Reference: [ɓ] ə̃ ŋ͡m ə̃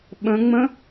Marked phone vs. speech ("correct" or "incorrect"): correct